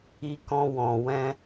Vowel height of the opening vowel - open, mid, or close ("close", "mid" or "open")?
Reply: close